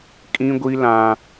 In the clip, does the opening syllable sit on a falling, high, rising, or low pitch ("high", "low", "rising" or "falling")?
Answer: high